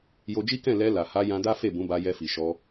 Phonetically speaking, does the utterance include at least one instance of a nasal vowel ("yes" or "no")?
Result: yes